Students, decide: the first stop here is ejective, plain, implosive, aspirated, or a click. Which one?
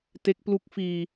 plain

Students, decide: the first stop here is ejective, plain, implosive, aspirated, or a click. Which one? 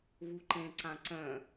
click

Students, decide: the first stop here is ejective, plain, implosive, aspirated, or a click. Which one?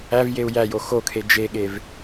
aspirated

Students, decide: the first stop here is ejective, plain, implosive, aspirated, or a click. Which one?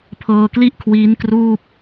aspirated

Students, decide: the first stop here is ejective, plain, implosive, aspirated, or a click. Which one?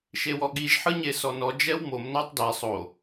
implosive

